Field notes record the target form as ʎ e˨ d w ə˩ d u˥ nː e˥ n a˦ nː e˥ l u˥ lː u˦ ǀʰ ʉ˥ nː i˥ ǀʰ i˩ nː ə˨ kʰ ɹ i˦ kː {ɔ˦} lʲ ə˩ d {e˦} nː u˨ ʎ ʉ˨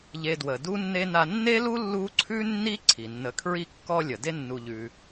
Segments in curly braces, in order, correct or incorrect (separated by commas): correct, correct